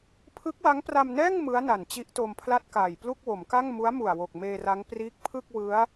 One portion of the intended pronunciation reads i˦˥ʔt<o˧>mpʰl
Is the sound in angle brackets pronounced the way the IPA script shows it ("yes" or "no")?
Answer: yes